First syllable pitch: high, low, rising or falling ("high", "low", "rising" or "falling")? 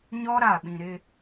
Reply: high